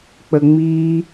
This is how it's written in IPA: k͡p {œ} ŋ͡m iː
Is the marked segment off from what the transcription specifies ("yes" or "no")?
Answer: yes